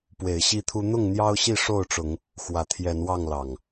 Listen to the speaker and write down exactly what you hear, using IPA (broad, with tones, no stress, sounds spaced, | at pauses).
p w e˨˦ ɪ̯ ɕ i˦ t̪ʰ u˦ n̪ ʊ˥˨ ŋ n̪ j ɑ˦ ʊ̯ ɕ i˥˨ ʂ o˥˨ ʊ̯ ʈ͡ʂ ʊ˨˦ ŋ | x w ä˨˦ t̪ʰ j ɛ˨˦ n w ɑ˥˨ ŋ l ɑ˨˩ ŋ